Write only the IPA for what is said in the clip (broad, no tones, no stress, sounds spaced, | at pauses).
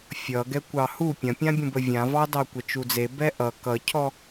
fʲ ʌ ɡ ɛ kʷ ɑ h u pʲ ɐ̃ pʲ ã bʲ ũ b ə vʲ ã v ɑ d ɑ kʷ ɛ t͡ʃ u d͡z e b ɛ ʔ ʌ k ʌ cʰ ɔ